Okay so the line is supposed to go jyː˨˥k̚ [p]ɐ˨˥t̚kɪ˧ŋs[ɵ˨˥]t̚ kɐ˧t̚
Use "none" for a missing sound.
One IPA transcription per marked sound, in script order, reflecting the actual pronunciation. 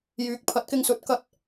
pʰ, ɵ˨˥

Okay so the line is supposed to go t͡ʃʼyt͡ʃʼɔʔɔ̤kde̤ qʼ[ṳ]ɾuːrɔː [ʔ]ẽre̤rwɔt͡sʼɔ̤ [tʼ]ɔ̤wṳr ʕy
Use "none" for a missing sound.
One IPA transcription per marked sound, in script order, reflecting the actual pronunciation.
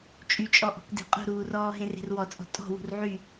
ṳ, ɦ, tʼ

